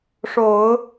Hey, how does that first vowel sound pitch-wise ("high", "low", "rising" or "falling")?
low